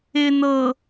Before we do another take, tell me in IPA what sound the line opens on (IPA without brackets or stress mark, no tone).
ɪ